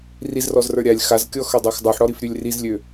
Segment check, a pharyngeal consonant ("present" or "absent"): present